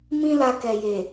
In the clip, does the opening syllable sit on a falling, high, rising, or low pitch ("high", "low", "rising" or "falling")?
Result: high